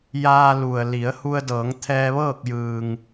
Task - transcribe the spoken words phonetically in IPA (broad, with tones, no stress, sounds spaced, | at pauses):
j aː˧ l u˩ ə̯ l i˩˧ ə̯ h u˧ ə̯ d ɤː˩˧ ŋ t̪ʰ ɛː˧ ʋ ɤː˥˨ k̚ j ɯː˩ ŋ